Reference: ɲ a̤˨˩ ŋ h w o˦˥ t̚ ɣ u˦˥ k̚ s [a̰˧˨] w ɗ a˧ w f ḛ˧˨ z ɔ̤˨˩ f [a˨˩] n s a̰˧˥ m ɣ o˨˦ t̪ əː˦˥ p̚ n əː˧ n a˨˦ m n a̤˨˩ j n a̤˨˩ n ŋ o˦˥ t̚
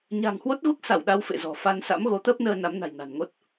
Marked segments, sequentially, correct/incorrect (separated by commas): incorrect, incorrect